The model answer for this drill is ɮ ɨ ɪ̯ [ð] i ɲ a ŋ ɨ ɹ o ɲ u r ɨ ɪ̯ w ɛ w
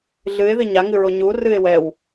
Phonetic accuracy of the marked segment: correct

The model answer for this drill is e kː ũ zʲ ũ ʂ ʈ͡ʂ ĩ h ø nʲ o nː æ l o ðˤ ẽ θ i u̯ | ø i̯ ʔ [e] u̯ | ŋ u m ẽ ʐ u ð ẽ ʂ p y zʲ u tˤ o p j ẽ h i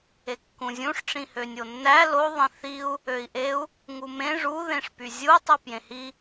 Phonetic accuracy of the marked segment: correct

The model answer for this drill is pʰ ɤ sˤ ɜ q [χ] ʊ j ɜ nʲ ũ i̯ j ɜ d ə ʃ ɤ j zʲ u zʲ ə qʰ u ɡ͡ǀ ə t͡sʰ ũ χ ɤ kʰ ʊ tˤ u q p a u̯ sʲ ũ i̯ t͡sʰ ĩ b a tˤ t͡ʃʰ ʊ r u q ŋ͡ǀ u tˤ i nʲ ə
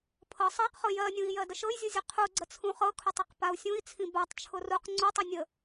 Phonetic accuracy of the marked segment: correct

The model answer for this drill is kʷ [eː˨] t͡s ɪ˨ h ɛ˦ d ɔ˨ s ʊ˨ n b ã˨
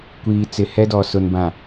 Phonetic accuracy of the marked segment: incorrect: iː˨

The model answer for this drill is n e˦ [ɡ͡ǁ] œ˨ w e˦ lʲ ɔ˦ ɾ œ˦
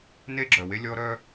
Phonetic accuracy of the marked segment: correct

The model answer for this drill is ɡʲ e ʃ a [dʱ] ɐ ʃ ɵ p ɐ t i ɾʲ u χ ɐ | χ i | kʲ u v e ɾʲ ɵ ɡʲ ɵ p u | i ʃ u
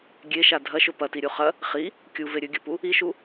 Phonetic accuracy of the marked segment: correct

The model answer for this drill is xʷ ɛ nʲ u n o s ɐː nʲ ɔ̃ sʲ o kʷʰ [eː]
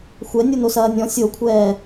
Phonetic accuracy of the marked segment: incorrect: ɛː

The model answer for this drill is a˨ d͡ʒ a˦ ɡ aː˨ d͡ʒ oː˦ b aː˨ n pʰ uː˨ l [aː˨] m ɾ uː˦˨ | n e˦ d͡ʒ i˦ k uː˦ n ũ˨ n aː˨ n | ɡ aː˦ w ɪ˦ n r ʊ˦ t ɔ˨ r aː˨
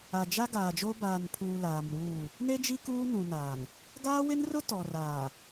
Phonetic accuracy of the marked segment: correct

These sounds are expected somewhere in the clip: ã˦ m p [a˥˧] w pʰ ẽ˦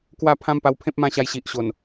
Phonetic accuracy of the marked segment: incorrect: a˧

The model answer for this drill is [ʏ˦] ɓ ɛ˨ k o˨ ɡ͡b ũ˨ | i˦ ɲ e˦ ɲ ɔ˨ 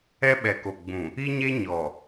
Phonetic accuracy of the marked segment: incorrect: ɛ˦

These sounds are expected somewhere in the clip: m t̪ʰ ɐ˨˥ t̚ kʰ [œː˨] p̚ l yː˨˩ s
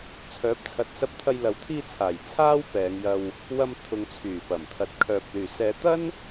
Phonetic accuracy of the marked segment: correct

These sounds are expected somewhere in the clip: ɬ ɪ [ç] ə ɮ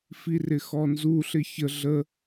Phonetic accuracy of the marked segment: correct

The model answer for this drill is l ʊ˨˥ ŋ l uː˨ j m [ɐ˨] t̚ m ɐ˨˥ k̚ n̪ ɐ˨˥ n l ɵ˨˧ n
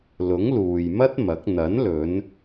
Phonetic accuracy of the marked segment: incorrect: ɐ˥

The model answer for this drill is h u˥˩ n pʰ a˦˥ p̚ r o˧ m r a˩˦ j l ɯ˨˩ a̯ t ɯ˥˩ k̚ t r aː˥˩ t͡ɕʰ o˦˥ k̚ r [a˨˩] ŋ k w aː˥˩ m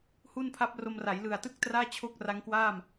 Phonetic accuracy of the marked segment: incorrect: a˦˥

